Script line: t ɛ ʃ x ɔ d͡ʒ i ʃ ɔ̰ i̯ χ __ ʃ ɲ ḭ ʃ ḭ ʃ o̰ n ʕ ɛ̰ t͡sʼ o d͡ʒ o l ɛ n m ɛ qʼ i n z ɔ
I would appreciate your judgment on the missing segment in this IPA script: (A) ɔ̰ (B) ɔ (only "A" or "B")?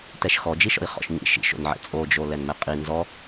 A